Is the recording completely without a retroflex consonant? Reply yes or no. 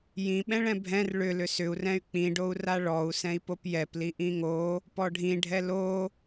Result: no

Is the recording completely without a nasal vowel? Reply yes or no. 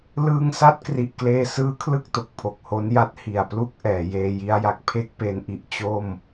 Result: yes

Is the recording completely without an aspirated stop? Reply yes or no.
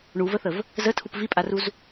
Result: no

